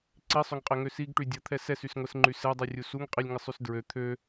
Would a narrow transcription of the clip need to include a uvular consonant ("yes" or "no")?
yes